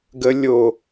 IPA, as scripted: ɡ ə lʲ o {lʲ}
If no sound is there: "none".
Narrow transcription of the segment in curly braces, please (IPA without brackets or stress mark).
none